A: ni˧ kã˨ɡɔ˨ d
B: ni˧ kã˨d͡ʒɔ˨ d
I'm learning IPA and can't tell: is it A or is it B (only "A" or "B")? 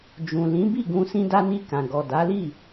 A